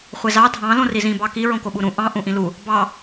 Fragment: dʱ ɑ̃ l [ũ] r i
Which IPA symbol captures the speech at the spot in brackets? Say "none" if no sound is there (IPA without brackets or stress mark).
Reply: õ